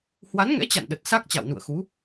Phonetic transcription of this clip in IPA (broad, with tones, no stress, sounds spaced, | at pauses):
h w a˨˦ n ŋ ɛ̰˧˥ t͡ɕ a̰˧˨ n ɗ ə˨˩ t̚ s a˦˥ k̚ t͡ɕ a̰˧˨ w n ṵ˧˨ ə̯ x u˨˦